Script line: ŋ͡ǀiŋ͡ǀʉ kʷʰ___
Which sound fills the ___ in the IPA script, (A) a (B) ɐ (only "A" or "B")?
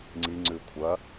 B